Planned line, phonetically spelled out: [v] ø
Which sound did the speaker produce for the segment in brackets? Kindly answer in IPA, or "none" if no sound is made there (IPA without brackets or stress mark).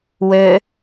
w